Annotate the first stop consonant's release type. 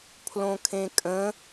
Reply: aspirated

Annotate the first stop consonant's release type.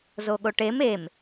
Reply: implosive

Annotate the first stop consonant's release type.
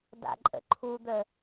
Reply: plain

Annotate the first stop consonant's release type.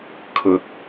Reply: aspirated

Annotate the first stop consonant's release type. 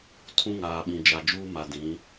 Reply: aspirated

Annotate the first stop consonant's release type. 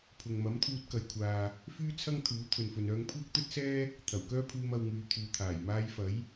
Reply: aspirated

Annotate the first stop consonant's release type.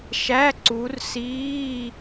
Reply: click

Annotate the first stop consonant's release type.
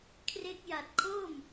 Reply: aspirated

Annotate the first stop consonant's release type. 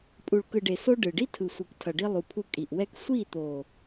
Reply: ejective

